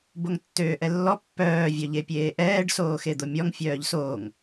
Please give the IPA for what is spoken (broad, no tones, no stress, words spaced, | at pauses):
boŋtːøːʔɛlːɔ pːœː vʲœʎepʲeːʔɛːɖ soːxed̪omʲɔŋ fʲœːʎsoːŋ